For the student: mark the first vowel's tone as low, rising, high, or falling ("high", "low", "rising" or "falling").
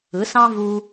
rising